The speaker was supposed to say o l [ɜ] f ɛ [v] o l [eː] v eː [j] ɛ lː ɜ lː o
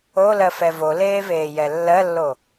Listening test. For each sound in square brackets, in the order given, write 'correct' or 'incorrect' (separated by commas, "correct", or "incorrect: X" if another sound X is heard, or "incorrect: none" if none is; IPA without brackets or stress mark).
correct, correct, correct, correct